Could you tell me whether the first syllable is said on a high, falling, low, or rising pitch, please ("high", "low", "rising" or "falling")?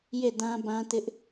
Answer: falling